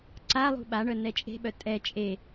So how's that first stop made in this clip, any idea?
click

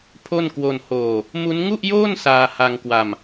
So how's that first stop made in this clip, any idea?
aspirated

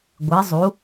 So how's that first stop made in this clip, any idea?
plain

